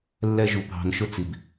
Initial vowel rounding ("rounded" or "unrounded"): unrounded